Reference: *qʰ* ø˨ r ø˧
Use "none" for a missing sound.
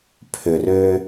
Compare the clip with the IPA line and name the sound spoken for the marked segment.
pʰ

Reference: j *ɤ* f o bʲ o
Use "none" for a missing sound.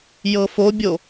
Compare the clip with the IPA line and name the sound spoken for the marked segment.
ɤ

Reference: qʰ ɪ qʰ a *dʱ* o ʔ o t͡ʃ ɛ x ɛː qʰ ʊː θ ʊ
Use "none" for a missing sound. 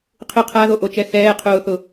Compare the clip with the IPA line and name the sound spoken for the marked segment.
ð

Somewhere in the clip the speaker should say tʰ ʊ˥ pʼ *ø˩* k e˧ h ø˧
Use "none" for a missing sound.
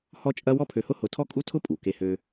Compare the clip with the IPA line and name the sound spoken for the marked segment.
u˩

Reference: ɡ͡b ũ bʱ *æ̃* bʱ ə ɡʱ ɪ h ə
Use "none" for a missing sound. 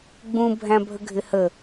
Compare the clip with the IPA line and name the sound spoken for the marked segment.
æ̃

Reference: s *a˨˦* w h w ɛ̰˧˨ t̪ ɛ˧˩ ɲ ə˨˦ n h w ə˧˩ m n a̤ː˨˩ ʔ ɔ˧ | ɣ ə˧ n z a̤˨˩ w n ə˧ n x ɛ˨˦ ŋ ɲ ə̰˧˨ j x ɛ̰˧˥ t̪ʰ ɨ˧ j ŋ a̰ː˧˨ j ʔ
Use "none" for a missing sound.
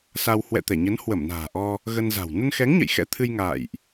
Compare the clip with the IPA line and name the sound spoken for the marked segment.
a˧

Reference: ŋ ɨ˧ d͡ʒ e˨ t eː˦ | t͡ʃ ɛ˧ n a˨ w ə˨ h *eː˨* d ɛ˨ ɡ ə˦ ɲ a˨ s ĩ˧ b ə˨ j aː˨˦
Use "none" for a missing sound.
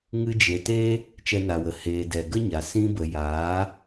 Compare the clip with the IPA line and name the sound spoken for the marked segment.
eː˨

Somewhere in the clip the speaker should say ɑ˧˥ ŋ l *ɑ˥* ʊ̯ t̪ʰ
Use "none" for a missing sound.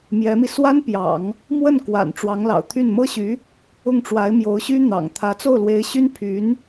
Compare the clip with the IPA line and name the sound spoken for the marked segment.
ɑ̰˨˩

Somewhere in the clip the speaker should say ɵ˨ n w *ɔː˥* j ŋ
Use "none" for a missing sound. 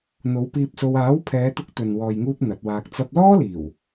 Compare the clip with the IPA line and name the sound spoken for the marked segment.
ɔː˨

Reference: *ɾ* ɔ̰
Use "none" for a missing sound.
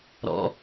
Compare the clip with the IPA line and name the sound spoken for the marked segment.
ɾ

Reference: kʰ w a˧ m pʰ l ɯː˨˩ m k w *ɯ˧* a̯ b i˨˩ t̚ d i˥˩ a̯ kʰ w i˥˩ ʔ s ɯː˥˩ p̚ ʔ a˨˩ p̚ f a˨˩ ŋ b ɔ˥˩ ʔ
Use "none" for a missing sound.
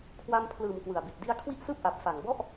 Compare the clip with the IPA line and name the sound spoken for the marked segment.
ɯ˨˩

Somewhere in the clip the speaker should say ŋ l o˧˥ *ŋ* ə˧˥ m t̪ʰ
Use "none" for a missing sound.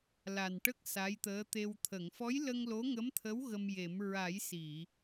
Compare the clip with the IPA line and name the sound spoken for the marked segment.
ŋ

